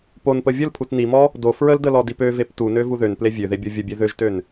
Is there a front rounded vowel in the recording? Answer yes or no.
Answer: yes